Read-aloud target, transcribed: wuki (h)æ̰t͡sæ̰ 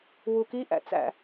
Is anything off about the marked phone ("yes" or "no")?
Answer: yes